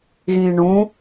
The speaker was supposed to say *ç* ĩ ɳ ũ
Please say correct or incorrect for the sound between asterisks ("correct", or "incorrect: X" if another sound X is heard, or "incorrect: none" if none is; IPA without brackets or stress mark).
incorrect: ɣ